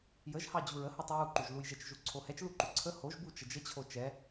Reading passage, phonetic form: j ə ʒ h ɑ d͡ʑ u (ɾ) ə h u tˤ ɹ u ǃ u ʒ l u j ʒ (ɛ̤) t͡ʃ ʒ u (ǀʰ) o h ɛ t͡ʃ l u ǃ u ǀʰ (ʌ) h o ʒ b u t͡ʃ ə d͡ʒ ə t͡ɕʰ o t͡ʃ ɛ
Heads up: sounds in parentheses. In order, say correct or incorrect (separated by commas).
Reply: incorrect, incorrect, correct, incorrect